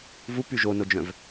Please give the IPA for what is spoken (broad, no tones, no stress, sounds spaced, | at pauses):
v u p y ʒ o n o d͡ʒ œ̃ v